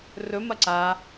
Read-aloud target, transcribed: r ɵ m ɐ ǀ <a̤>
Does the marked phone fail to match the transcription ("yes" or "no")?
yes